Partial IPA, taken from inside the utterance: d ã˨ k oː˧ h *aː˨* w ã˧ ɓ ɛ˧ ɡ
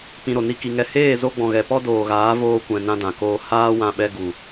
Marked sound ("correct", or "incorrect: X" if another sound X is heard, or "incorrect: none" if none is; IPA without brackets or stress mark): incorrect: aː˦